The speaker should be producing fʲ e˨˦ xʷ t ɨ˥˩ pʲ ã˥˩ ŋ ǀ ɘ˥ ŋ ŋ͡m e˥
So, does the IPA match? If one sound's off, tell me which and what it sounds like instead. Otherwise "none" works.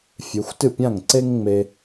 ɘ˥ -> e˥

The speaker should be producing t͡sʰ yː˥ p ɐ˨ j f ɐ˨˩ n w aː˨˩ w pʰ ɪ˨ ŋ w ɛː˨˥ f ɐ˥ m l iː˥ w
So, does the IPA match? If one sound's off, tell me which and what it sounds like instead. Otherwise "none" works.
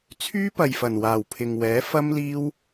none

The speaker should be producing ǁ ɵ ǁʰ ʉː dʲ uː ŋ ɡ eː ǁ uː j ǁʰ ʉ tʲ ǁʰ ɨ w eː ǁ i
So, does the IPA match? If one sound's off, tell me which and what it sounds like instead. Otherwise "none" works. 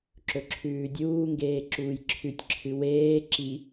none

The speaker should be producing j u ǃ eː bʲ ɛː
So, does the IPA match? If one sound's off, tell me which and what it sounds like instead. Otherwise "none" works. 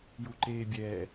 none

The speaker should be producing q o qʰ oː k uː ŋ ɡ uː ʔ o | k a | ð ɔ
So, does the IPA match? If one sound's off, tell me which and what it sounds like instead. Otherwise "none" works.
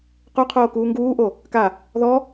none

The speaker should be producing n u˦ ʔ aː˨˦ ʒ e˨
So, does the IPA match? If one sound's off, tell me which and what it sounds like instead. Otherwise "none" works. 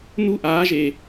none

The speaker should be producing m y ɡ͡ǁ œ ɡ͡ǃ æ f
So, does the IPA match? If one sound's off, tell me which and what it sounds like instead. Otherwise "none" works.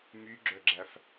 ɡ͡ǃ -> ɡ͡ǁ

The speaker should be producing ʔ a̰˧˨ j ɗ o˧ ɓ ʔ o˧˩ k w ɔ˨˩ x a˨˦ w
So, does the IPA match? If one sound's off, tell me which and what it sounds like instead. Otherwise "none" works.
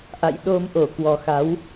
ɓ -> m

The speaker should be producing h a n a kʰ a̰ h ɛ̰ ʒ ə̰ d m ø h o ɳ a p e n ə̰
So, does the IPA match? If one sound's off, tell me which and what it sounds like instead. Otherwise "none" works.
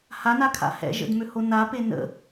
ɳ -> n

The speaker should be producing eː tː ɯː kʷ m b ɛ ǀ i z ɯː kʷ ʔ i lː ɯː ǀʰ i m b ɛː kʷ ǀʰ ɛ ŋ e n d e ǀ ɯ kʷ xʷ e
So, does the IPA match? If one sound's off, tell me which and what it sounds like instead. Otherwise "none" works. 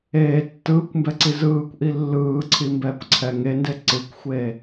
none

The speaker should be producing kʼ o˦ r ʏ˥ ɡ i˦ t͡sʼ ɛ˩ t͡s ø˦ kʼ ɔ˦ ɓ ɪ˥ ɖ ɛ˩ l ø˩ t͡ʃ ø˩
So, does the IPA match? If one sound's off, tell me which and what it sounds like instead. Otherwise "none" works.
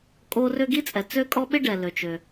none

